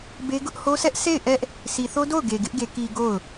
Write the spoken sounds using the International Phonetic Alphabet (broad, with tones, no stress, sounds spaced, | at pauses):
b e˦ ɡ ʊ˦ ʔ h o˦ sʰ ɛ˦ ʔ s e˦˨ ɪ̯ ʔ ɛ˦ ʔ | s i˨ θ o˦ d o˦˨ ʊ̯ ɡ e˨ ɡ ɪ˦ ʔ ɡ e˨ k i˨ ɡ o˦˨ ʊ̯